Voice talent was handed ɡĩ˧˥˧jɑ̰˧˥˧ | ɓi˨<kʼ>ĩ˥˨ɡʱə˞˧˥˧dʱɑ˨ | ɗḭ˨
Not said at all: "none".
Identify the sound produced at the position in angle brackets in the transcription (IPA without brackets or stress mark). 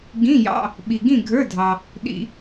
ɡ